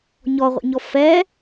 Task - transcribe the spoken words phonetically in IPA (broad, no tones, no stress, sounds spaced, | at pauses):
ɲ ɔ ʁʷ ḭ ɲ ɔ f ɛ